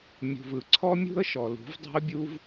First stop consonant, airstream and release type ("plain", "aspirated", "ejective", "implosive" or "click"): click